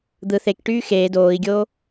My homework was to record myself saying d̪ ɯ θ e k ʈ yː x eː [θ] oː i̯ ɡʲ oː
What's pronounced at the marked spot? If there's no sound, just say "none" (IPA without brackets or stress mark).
d